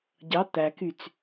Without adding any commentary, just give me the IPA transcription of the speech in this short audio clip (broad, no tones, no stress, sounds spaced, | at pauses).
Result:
ɟ ɑ t̪ æ k y t͡s